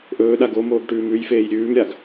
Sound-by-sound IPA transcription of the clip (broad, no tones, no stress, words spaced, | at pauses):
ʔɵːɗa ɡomoːɡʈʉːm ʉjfeːj ɾʲʉːmɾʲaɡ